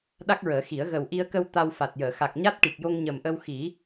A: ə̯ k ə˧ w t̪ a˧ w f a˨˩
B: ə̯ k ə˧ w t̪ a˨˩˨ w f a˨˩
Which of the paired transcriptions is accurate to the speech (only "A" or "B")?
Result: A